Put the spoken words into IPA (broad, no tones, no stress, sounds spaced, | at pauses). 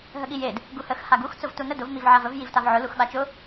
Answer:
ɦ ə ɠ i j e d | ɡ u h ə x h a ɡ u x t͡s ʊ v t u n ə d ʊ v m i v ʕ a v ə v j i v t a v ʕ ʊ l u x ɓ a t͡ʃ ʊ